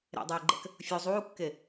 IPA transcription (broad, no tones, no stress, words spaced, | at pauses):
ɾḛdˤeːɡ͡ǃɛ̰k | fʲu zˤuːkːe